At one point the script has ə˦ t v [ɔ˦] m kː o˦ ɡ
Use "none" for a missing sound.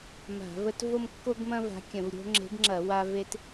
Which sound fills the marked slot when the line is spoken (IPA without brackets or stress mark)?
o˦